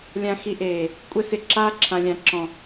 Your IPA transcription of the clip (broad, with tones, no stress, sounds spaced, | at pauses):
lʲ ã˧ x i˧ ʔ eː˨ | kʷʼ ɛ˦ s ɪ˧ ǁ aː˦ ǁʰ ã˨ lʲ ã˨ ǁ ɔ̃˨